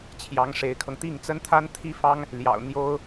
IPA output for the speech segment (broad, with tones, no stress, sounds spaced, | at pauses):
t͡ɕʰ j ɑ˧˥ ŋ ʂ e˧˥ ɪ̯ kʰ ɤ˧ ŋ t̪ i˥˩ ŋ t͡s ə˥ n t̪ʰ a˥ n t̪ʰ i˥ f ɑ˥ ŋ | l j ɑ̰˨˩ ʊ̯ n̪ j o˥ ʊ̯